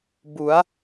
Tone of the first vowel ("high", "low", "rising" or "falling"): rising